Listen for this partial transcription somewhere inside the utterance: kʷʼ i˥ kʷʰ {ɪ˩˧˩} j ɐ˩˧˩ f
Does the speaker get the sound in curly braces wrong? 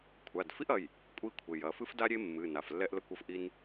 no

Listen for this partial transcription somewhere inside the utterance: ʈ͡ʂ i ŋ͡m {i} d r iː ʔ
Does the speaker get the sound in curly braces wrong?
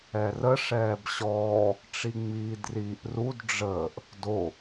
yes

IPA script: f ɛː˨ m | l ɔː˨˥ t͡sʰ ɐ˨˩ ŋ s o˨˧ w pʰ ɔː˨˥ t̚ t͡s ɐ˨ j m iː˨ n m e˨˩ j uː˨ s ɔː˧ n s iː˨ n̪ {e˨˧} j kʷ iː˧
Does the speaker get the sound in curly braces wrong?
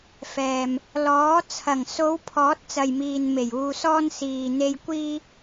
yes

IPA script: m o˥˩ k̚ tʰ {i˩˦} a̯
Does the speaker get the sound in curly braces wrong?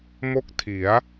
no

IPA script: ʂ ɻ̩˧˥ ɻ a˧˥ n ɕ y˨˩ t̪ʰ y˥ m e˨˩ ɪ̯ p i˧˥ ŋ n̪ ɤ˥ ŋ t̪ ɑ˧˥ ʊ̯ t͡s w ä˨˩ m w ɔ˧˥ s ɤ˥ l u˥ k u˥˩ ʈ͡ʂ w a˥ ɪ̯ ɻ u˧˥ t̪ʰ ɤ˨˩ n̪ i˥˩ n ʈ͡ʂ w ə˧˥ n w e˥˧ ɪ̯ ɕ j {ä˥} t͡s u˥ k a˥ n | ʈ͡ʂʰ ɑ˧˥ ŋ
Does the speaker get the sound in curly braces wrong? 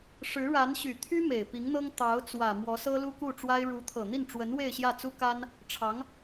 yes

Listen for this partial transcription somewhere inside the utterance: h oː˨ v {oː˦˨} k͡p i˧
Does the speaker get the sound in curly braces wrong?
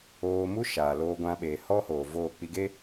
no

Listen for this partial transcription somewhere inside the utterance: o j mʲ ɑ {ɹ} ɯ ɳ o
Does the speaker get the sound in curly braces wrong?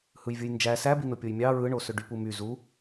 no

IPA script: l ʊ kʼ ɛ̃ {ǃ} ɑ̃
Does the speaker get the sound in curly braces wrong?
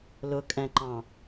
no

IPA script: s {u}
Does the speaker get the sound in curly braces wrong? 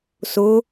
yes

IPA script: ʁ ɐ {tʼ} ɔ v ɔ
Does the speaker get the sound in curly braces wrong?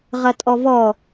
no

